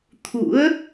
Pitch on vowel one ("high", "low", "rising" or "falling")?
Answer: rising